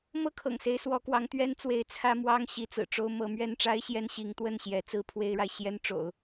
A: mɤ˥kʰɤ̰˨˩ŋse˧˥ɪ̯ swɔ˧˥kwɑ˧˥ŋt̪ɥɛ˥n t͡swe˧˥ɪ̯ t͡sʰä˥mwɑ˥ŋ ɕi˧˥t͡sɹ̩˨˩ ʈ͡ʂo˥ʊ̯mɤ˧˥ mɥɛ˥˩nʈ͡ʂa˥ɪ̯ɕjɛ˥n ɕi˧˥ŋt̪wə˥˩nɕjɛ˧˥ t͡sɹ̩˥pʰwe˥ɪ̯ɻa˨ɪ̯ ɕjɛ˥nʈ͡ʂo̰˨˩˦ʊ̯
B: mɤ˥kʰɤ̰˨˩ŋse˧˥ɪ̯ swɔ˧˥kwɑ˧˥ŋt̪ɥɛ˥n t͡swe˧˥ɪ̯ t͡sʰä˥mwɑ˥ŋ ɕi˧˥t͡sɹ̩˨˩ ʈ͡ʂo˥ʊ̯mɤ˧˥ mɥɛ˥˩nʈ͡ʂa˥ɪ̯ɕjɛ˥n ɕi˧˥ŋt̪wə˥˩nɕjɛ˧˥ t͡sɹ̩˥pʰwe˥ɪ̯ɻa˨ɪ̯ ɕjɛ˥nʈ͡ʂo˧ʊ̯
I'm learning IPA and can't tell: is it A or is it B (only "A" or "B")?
A